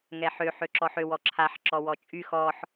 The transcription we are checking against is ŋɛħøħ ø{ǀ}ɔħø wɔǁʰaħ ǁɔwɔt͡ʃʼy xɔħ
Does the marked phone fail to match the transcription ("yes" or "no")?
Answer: yes